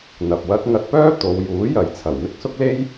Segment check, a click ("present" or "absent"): absent